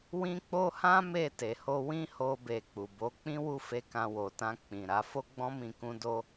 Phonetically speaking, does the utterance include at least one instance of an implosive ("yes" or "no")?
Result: no